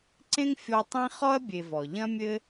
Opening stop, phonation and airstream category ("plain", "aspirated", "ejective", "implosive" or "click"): click